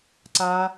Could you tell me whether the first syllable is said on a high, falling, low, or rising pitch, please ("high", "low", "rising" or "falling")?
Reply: high